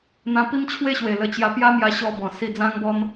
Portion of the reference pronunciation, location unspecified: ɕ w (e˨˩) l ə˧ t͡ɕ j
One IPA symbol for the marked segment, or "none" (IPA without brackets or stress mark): e˨˩